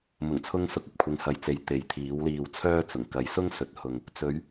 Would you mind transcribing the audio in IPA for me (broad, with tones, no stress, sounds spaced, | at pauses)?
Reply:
m ʊ˨˩ ŋ t͡sʰ ʊ˧ ŋ s ʊ˨˥ k̚ ɐ˨ p̚ kʷʰ ɪ˨˧ ŋ h ɐ˨ j t͡s e˨˧ j t̪ e˨ j t̪ʰ iː˨˥ w l iː˧ w t͡sʰ œː˥ t͡s ʊ˨˩ ŋ k ɐ˨˧ j s ʊ˥ ŋ s ɵ˨˥ t̚ h ʊ˨ ŋ | t͡s ɵ˨˧ ɥ